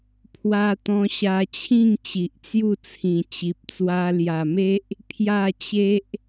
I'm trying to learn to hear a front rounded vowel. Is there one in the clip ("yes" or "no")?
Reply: no